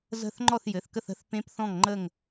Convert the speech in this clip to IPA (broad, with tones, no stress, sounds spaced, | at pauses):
z ə̤˥˨ θ ŋ͡ǃ ɔ˥˨ θ j ɘ˩˧˩ θ k ə˥˨ θ ə̤˦˥ θ p ẽ˦˥ p θ ɔ̃˥˨ ŋ ŋ͡ǃ ə˥˨ ŋ